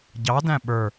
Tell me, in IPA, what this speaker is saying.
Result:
ɟ ɑ d æ̃ ɓ ə˞

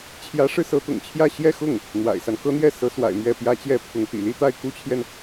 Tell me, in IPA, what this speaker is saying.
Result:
t͡ɕʰ j ä˧˥ ʂ ɻ̩˧ s ɤ˧˥ t̪ ʊ̰˨˩ ŋ t͡ɕʰ j ä˥˧ ɕ j ɛ˥˧ x ʊ˥˩ ŋ | n̪ w a̰˨˩ ɪ̯ s a˦ n k ɤ˥ n̪ j ɛ˥˩ s ɤ˧˥ s w a̰˨˩ ɪ̯ m ɥ ɛ˥˩ p j ä˥ t͡ɕ j ɛ˥ pʰ ʊ˧˥ ŋ t̪ ḭ˨˩ l i˥ t̪ a˥˩ ɪ̯ k u˥ t͡ɕʰ j ɛ˨ n

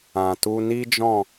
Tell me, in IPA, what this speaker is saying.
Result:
ã˨ t u˧ n i˦ d͡ʒ ɔ̃˦˨

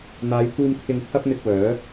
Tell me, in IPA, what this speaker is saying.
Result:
n̪ aː˨˧ j kʷ iː˧ m t̪ʰ ɪ˧ ŋ t̪ʰ ɐ˥ p̚ n̪ ɪ˧ k̚ w œː˨˥

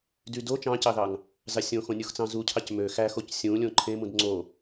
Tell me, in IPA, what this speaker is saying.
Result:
d y d o t͡ʃ ɑ̃ c ɑ ð ɑ ŋ | z ɑ sʲ õ x õ nʲ u x t͡s ɑ̃ z u cʰ ɑ c m ø x æ x o c sʲ ũ lʲ õ ǃʰ ẽ m ũ d ŋ͡ǀ o

